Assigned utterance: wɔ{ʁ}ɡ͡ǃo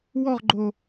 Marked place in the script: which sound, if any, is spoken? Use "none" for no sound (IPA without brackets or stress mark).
ʁ